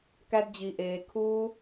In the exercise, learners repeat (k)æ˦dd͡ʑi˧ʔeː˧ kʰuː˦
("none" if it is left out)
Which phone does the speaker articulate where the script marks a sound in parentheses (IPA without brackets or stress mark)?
k